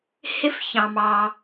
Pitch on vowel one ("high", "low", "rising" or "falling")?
high